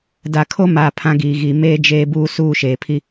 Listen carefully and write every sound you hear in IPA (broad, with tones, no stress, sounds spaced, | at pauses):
d a˨ kʰ o˦ m aː˨ pʰ ã˦ ɡ iː˨ ɣ i˨ m eː˦ d͡ʒ eː˦ b uː˦ s uː˦˨ ʃ eː˨ pʰ i˦